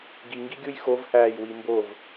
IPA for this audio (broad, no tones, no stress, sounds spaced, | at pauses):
ɡ i ŋ ɡ i ɡʲ u j x o v h æː j w i m b o v